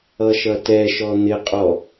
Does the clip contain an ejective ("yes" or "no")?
yes